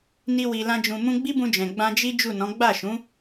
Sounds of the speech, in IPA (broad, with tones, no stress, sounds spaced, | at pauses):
n i˧ w i˨ l ã˧ d͡ʒ ũ˨ m ũ˧ ɡ͡b i˦ b ũ˧ d͡ʒ ɛ̃˨ ɡ͡b ã˧ d͡ʒ i˦ d͡ʒ u˦˨ n ɔ̃˨˦ ɡ͡b a˦˨ ʃ ũ˨˦